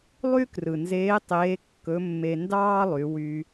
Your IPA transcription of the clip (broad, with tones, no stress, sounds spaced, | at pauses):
lˠ y˥ k r ɯ˩ n z eː˧˥ tˤ eː˧˥ kː ɵ˧˥ mː e˧ n d ɑː˥ lˠ y˩˧ w y˧